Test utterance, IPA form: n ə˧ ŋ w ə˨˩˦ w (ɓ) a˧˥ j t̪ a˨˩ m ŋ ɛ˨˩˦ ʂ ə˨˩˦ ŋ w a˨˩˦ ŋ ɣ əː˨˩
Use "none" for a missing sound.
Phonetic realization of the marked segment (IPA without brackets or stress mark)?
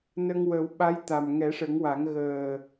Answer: ɓ